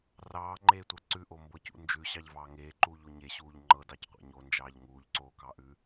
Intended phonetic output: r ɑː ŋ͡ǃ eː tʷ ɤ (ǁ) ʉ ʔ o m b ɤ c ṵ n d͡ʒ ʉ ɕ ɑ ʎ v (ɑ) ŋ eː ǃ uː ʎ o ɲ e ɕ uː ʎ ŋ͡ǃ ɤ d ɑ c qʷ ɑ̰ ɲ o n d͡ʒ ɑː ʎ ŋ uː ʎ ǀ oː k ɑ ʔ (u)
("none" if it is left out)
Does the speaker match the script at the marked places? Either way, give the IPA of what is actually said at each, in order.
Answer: ǀ, ɑː, ʉ

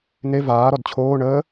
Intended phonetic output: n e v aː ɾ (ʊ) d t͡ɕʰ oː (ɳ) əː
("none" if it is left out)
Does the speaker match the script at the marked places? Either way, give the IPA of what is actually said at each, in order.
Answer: ɔ, ɳ

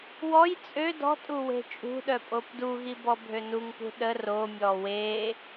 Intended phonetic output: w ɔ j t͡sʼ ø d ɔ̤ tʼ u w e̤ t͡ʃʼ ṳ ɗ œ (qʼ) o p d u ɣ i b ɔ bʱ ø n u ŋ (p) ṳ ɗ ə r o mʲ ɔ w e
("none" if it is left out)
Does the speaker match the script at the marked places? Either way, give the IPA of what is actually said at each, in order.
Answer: pʼ, p

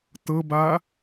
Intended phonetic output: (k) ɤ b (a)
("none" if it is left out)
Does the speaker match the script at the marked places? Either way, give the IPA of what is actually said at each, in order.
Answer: t, a

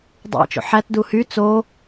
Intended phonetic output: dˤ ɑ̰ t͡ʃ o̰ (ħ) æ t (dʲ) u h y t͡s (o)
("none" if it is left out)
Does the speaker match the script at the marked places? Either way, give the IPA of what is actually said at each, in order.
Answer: ħ, d, o

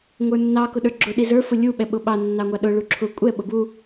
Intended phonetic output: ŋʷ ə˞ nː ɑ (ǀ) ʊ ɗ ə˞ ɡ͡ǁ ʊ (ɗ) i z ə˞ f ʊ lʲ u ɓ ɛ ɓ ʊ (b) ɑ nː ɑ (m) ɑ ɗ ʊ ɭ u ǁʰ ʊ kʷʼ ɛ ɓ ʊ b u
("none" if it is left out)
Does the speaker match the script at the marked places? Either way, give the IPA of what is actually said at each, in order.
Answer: k, ɗ, ɓ, ŋʷ

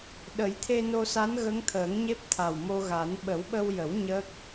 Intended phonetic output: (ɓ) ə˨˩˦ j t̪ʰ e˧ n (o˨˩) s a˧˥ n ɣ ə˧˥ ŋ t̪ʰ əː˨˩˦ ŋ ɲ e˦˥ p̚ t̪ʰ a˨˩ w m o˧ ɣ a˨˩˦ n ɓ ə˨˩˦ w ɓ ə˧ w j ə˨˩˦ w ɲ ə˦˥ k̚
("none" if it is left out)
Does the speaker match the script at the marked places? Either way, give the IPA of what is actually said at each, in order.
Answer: ɗ, o˧

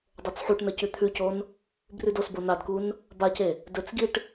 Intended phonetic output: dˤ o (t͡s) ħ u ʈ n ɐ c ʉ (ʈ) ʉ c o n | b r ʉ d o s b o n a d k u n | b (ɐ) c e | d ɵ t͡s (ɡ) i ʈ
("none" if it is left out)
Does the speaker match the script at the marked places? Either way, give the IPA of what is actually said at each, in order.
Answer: t͡s, t̪ʰ, a, ɡ

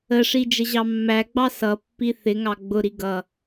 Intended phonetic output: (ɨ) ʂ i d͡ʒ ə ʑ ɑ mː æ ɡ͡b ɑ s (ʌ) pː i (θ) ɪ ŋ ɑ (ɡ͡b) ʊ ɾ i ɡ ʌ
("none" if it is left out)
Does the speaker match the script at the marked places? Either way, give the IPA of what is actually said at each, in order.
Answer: ə, ʌ, θ, ɡ͡b

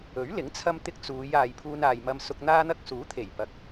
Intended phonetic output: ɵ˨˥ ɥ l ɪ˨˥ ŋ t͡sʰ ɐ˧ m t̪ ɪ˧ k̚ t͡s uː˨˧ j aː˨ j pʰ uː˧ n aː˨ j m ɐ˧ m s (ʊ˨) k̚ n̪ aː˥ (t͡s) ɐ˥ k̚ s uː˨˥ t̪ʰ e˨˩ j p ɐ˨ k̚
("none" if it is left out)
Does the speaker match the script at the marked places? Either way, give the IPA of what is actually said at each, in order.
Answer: ʊ˧, n̪

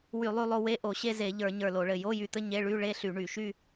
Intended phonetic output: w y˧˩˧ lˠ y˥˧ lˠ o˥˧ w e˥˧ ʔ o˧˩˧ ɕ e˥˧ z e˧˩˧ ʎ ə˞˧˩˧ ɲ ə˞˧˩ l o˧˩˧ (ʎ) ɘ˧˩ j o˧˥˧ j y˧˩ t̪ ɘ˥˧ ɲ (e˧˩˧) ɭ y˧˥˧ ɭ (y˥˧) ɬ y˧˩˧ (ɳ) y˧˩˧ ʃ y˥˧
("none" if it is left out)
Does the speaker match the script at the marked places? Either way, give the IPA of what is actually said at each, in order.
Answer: ɭ, e˧˥˧, e˥˧, ɳ

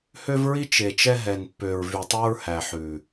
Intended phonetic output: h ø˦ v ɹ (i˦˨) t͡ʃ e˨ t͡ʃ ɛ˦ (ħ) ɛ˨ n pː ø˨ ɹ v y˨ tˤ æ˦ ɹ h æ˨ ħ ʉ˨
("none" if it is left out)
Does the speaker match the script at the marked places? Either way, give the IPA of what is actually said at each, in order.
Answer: i˦, ɦ

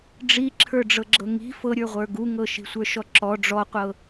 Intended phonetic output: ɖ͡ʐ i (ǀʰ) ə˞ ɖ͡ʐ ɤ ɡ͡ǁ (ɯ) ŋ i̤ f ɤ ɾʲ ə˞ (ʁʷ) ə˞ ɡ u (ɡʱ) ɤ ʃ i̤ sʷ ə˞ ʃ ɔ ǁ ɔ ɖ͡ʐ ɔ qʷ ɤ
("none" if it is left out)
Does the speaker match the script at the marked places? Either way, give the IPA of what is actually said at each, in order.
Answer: ǁʰ, ɤ, ʁʷ, ŋ

